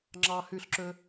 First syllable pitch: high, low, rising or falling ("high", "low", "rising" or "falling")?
low